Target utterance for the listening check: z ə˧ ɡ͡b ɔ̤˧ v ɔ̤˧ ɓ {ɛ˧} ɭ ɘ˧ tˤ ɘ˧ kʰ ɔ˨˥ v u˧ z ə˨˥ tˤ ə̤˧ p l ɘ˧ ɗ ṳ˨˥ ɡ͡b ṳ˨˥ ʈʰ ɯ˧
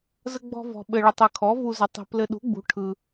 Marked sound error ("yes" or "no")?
yes